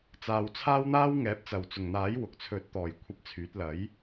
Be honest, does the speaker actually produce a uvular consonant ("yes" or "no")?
no